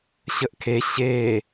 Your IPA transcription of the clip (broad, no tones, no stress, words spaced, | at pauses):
ɕəʔkʰe ɕeː